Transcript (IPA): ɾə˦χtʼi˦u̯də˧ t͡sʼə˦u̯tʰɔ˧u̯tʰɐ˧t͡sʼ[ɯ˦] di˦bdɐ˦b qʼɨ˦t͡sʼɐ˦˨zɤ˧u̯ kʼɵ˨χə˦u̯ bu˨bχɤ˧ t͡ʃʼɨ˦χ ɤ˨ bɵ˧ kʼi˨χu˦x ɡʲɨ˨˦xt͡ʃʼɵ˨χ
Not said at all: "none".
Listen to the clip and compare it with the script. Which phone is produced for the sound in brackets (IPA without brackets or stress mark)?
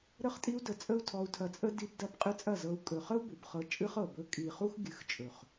ə˦